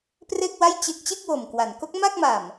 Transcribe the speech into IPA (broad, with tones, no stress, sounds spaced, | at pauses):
p r e˥˩ k̚ w a˥˩ j t͡ɕ e˦˥ k̚ t͡ɕ e˥˩ k̚ w o˨˩ m k w a˩˦ n k o˦˥ k̚ m a˥˩ k̚ m a˨˩ m